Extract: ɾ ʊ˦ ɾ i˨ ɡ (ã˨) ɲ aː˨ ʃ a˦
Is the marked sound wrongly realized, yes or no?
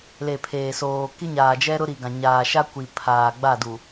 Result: no